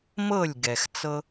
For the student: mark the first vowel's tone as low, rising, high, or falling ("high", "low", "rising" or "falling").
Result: falling